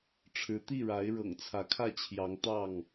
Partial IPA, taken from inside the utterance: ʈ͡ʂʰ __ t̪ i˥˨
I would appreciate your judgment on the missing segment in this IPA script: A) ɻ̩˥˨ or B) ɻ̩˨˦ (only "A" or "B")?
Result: B